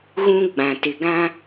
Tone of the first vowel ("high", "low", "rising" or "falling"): high